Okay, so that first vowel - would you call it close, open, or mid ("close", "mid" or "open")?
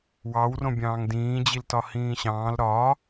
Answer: open